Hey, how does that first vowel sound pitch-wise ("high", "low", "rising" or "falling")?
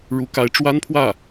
rising